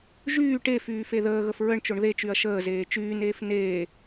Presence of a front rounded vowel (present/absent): present